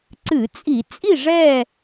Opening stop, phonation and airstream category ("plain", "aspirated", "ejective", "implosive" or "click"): click